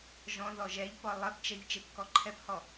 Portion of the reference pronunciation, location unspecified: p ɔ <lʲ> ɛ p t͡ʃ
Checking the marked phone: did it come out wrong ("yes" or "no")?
yes